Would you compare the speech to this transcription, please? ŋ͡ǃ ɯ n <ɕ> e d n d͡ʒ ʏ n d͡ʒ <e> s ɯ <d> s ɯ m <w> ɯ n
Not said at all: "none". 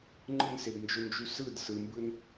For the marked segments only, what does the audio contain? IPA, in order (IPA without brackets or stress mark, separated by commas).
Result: s, y, d, b